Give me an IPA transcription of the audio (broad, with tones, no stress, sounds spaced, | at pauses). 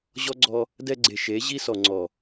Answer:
ʑ ɔ˦ ɡ͡ǀ ɔ˧ | d ɛ˧ ɡ͡ǀ e˨ ʃ e˨˦ ʑ i˦ s ɔ˨ ŋ͡ǀ ɔ˨